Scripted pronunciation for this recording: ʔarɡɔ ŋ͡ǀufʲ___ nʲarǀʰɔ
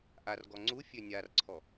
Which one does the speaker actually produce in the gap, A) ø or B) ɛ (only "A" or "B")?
A